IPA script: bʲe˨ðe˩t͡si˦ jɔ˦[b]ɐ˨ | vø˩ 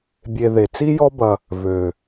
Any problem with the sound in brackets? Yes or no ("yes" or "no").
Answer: no